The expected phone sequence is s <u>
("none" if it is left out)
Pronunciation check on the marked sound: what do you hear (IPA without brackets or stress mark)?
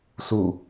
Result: u